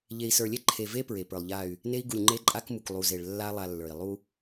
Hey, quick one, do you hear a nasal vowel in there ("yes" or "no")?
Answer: no